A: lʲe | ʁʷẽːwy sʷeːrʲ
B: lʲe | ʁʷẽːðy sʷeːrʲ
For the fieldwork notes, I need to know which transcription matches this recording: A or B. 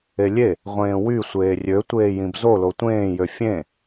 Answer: A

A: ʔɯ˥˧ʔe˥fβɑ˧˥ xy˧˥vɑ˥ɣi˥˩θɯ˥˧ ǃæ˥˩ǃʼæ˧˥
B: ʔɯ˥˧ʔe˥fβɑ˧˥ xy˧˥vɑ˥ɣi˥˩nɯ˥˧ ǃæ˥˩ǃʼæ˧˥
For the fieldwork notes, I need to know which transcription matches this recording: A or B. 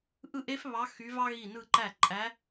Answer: B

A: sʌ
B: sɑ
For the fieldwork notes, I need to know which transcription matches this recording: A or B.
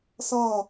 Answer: A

